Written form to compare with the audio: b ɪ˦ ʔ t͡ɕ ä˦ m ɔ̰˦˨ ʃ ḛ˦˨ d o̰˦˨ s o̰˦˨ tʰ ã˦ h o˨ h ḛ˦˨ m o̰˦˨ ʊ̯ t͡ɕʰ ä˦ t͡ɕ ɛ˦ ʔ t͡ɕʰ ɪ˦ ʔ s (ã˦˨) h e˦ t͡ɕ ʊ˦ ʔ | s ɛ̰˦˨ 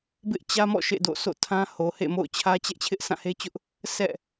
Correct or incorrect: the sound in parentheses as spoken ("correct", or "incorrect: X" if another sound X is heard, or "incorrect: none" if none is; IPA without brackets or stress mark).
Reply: correct